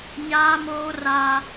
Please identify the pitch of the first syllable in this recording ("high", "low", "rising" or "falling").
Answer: high